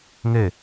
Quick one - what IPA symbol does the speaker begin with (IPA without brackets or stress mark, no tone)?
ŋ